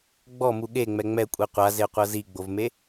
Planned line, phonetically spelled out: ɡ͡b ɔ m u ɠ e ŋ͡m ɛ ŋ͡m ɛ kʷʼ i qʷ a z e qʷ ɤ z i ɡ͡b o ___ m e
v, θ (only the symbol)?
v